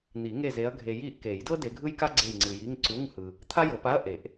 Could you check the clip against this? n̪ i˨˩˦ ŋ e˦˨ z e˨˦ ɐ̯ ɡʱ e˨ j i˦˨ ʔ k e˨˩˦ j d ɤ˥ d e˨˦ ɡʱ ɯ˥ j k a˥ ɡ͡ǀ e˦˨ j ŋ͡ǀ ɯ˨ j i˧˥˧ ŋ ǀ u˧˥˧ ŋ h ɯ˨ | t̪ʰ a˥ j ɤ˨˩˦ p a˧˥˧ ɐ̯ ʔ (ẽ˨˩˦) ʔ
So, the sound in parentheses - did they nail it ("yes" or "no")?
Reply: no